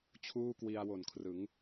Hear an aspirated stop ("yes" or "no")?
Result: yes